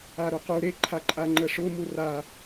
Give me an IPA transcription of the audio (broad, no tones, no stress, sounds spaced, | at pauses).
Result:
a ɾ u q u ɾ e ǃʰ a ǃʼ a ŋ͡ǃ ə ʂ ʊ m u r a